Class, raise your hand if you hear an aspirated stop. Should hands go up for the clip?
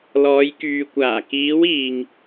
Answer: no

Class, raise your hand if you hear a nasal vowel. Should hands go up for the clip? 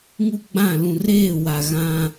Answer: yes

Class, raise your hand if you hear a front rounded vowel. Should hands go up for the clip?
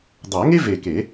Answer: no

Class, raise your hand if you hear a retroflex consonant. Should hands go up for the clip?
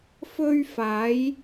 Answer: no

